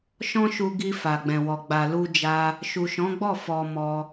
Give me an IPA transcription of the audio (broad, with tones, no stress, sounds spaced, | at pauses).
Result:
ʃ ɔ̃˦ ʃ u˧ ɡ i˧ f a˨ ɡ͡b ɛ̃˨ w ɔ˨ ɡ͡b a˨ l u˧ d͡ʒ a˧ | ʃ u˨ ʃ ɔ̃˨˦ ɡ͡b ɔ˦˨ f ɔ˧ m ɔ˧